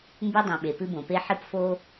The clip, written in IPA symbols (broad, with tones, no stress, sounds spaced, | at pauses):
m b ʉ˥ dˤ õ˨ ɓ e˩ p ɨ˥ b õ˩ p e˥ ħ ɨ˥ p f o˥